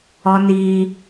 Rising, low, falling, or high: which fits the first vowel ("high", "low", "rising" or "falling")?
high